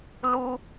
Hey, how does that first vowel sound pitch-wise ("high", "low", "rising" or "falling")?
high